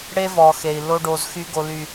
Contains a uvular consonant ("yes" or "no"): no